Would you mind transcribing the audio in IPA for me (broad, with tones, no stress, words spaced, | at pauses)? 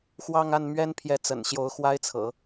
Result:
xwɑ˥˧ŋa˥˩nmɥɛ˥n pʰjɛ˧˥t͡sə̰˨˩n ɕjo˧˥ʊ̯xwa˥ɪ̯t͡sʰɤ̰˨˩˦